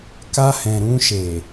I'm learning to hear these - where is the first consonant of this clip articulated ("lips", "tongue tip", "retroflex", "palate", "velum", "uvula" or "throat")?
velum